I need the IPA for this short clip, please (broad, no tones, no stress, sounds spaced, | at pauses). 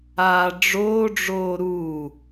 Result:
aː ɖ͡ʐ oː ɖ͡ʐ oː ɾ uː